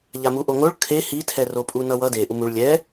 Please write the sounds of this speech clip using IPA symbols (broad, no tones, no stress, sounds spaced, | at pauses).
ʎ a m u ʔ o ŋ o ɭ kʰ e h i tʰ ɛ r o pʼ u n ʌ w ʌ d e ʔ u m u ɭ lʲ ɛ